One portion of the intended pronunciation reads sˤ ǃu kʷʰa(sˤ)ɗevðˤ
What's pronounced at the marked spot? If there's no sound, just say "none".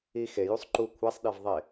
sˤ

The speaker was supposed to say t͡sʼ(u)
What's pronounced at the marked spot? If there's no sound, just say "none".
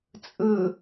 ɯ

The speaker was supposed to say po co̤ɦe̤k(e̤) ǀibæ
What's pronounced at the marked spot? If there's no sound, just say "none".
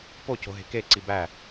e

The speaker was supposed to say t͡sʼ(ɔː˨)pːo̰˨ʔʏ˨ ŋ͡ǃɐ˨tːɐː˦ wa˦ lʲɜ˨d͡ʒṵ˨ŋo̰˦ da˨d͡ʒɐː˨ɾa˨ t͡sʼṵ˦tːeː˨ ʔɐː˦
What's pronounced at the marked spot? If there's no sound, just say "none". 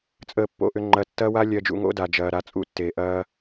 əː˨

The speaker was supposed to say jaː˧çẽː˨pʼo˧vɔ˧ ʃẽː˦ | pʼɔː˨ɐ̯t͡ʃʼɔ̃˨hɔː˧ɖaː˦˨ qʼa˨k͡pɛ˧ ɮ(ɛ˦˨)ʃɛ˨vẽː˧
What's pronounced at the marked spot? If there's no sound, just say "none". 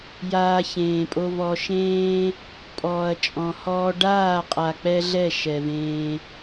ɛ˦˨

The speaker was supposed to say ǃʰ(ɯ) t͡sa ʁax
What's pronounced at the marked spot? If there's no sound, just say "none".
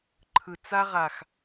ɯ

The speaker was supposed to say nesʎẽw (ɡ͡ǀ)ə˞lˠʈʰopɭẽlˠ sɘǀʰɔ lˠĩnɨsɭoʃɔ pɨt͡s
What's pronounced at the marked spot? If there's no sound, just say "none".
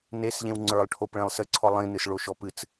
ŋ͡ǀ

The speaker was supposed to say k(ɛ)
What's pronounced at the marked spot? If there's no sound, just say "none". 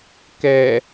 ɛ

